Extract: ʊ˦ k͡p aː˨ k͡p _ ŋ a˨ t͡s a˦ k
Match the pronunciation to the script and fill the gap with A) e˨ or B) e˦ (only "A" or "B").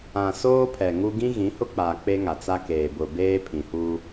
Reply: B